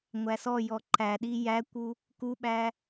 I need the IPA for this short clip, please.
ŋʷ æ s ɔ j ɔ ǃ æ ɗ i j æ kʷ u | k u ɓ æ

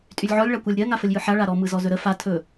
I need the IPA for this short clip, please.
tʼ y lʲ ʕ ɔ lʲ ɭ a kʷ a lʲ ɾʲ ɜ ŋ a f ə lʲ j ɯ ħ a ɭ a ɾ ɔ m ɯ z ɔ z ɵ ɾ ə f a tʰ ɵ

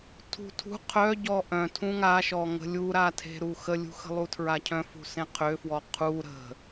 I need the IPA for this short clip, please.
tʰ ṳ tʰ ṳ qʰ œ ɟ ɔ ʔ œ̃ tʰ ũ ŋ a ʃ ɔ ŋ ə̤ lʲ u ɾ a tʰ e̤ ɾ u x ə lʲ ṳ x ə̤ lˠ u tʰ ɹ a cʰ œ̃ f ṳ s ẽ qʰ ø f w ɔ qʰ u ɾ ə̤

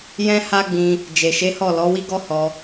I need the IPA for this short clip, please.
j ɛ̃˦ h a˦ ɡ͡b ĩ˧ | d͡ʒ e˨ ʃ e˨˦ h ɔ˦˨ l ɔ˨˦ w i˦ ɡ ɔ˦ h ɔ˧

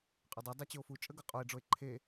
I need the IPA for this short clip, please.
qʼ ɵ dˤ e dˤ ɛ t͡ɕ ɵ o̯ f u t͡ʃʼ ə ɡ ɤ qʼ o e̯ ɖ͡ʐ o e̯ ǃʰ e

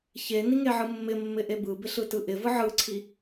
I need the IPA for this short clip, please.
ç e n i ŋ e ʕ ɯ mː ɪ mː ɪ ʔ e b ɯ b ɪ ɬ ɯ t ɯ ʔ ɪ v ɯ ʕ ɯ ǀʰ i

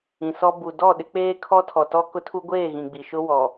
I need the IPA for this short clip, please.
ĩ˨ s ɔ˦ b u˨ d ɔ˦˨ ɗ ɪ˦ k͡p eː˦ kʰ ɔ˦ tʰ ɔ˨ t ɔ˦ k ʊ˦ tʰ u˦ ɡʷ eː˦˨ ɣ ĩ˨ ɡ͡b i˨ ʃ ʊ˦ w ɔ˨

